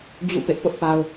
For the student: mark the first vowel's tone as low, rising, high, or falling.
falling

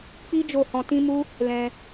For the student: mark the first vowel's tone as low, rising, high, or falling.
high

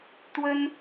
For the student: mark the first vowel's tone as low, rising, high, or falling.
high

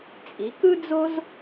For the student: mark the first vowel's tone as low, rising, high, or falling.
rising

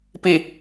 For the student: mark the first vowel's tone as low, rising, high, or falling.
low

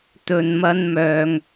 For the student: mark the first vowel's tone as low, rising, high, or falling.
low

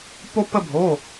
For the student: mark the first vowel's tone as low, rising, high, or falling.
high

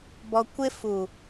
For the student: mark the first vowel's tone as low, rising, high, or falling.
low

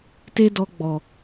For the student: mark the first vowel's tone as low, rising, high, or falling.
high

